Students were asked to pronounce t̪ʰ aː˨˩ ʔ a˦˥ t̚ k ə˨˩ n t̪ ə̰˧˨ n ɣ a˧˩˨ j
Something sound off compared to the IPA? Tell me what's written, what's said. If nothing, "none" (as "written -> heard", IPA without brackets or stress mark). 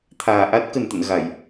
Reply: none